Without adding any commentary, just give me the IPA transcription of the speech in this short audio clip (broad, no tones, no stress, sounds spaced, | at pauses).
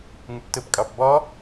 ŋ ʏ p t ə p kʼ ɑ p b ɒ